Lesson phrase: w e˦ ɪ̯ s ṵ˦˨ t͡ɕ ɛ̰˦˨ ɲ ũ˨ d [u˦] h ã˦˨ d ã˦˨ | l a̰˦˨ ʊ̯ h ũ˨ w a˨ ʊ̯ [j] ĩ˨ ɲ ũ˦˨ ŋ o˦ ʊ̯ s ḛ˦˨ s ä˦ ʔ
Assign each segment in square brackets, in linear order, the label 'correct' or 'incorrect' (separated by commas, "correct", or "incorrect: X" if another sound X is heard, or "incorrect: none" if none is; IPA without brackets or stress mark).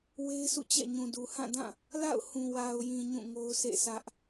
incorrect: u˨, correct